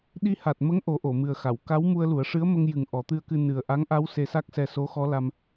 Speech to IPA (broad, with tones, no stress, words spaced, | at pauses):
ɗi˧ha˨˩t̚mə˧˥ŋ ʔo˨˩˦ʔo˨˩˨mɨ˨˩ə̯xa˨˩˨w ka˧˥wmu˧ə̯lu˨˩˦ə̯ʂɨ˧˥ə̯ mə˧ŋjɨ˨˩ŋ ʔɔ˨˩˦t̪ɨ˧ə̯kɨ˧ nɨ˨˩ə̯ ʔa˧˥ŋʔa˧˥w se˧sa˦˥k̚sɛ˧ so˧˥xɔ˧˥ la˧m